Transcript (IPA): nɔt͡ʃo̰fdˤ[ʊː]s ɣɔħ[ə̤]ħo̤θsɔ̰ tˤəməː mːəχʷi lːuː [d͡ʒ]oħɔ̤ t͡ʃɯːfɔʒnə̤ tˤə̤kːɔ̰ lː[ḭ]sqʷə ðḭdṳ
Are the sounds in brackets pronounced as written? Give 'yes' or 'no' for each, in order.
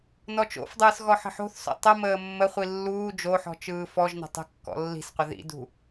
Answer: no, yes, yes, no

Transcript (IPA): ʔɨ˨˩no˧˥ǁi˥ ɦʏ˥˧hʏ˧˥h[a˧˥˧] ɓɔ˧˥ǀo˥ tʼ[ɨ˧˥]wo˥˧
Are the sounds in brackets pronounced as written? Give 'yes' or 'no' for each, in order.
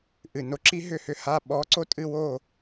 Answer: yes, no

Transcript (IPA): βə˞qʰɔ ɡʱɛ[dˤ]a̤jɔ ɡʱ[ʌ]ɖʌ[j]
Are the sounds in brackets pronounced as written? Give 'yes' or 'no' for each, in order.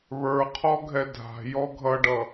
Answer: no, yes, no

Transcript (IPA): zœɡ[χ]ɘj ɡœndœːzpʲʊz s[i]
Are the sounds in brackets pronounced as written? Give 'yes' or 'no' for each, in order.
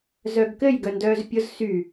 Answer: no, no

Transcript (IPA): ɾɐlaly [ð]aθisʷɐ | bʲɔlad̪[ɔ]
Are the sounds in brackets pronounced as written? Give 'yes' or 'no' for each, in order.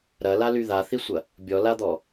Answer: yes, yes

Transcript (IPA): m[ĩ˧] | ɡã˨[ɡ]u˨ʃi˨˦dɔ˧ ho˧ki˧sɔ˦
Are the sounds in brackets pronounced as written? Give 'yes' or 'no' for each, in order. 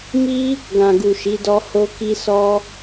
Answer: no, yes

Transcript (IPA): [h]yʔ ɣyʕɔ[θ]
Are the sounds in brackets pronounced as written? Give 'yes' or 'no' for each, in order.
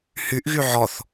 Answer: yes, yes

